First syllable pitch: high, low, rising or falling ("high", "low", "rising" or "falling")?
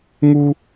high